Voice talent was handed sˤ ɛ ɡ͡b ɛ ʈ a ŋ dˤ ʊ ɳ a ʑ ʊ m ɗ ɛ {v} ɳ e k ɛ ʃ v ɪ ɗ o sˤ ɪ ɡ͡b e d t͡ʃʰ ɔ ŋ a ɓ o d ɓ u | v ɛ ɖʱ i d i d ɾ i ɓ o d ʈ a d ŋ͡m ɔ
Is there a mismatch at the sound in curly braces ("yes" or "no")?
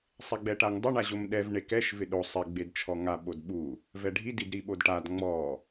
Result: no